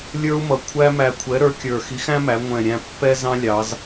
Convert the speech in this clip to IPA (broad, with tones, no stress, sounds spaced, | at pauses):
lʲ ə˞˥ u̯ m ʌ˨˩ kʷʰ æ˥ m æ˧ kʷʰ ɛ˨˥ ɾ ə˞˨˥ kʲ ə˞˨˩ x i˨˥ x æ̃˥ m æ˩˧ ŋʷ ɛ̃˨˩ ɾʲ æ̃˧ pː ɛ˥ z ɑ̃˥ lʲ ɑ˩˧ z